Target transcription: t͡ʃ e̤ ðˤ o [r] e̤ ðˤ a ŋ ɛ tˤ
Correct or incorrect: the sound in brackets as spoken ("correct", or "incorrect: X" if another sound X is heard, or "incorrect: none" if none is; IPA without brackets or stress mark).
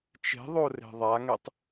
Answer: correct